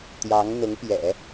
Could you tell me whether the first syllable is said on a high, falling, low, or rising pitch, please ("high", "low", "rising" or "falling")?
rising